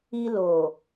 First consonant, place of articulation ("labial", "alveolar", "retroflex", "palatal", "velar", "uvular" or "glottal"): alveolar